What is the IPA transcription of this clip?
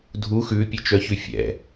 dʱ u x ʉ pʲ ɛ t͡ʃ œ ç ʉ fʲ ɛ̰

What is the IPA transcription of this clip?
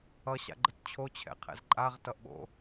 ʌ ɕ a̰ ɡ͡ǃ ə t t͡ɕʰ o t͡ɕʰ ɛ̰ qʰ ɛ̰ z ǃʼ a ʁ t ʌ ʔ ɓ o̰

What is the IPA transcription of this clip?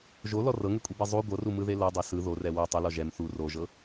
ʒ o l ɔ r ɤ ŋ e kʷʼ i b e zˤ u ɡʷ ɤ r u m ɯ ð e l ɤ dˤ e s ɯ ð o r ɛ w o tˤ u l ɔ ʒ ɛ m θ u r o ʒ ɤ

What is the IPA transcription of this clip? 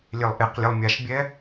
lʲ e lˠ ʔ e q lʲ e lˠ mʲ a ʃ bʲ ɛ

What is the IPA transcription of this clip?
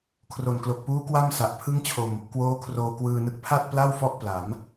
kʰ r o˨˩ n k l o˨˩ k̚ p uː˦˥ k w a˥˩ m s a˨˩ ʔ pʰ ɯ˥˩ ŋ t͡ɕʰ o˧ m | k w oː˦˥ kʰ r oː˧ k w ɯː˧ n ɯ˦˥ k̚ pʰ a˥˩ t̚ p l a˥˩ w f ɔ˥˩ ʔ p l a˩˦ m

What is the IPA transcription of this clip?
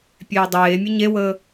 pʲ eː dˤ eː mʲ ə ɲ e w əː

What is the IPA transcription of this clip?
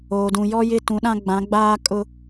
oː˨ d ũ˨ j ɔ˦ j ɪ˦ t ũ˨˦ ɗ ã˦ ɡ͡b ã˨˦ ɡ͡b aː˦ kʼ ʊ˦

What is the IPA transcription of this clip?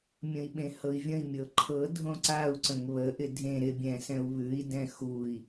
mʲ ə̃ i̯ ɓ ẽ h ɤ i̯ vʲ ə̃ i̯ mʲ ɤ ǃʰ ɤ dʱ õ ǀ a u̯ ǀ ə̃ ŋ β ə ʔ ɪ dʱ ẽ ɾ ɪ bʲ ɛ̃ s ɛ̃ u̯ β ʉ i̯ d ɛ̃ x u i̯

